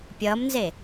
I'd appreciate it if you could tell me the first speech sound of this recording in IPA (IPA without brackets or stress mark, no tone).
pʲ